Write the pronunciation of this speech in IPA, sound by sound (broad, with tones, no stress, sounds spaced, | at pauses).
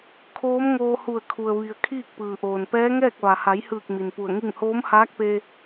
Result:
kʰ oː˧˥ m ŋ oː˧ h u˧˩ ə̯ kʰ u˩ ə̯ ʋ i˩ ə̯ kʰ iː˥˨ k̚ p ɯː˩ ʔ oː˩ n p ɛː˧˥ ŋ ɛː˥˨ k̚ ʋ a˩ h a˩˧ j h ɯː˧˩ k̚ m i˩ n p u˧˩ ə̯ ŋ i˥˨ ŋ h oː˧˥ m h aː˧˥ k̚ p e˧